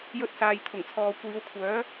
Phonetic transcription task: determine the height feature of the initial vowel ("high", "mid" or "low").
mid